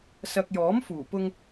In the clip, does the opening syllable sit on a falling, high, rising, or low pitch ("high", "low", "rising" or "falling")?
low